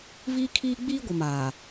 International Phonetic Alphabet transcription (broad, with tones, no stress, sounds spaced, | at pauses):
v iː˦ kʰ iː˦ ɡ͡b iː˦ ɡʷ ɪ˨ m aː˨